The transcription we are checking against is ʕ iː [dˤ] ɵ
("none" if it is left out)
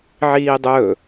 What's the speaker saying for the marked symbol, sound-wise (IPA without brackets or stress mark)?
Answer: dˤ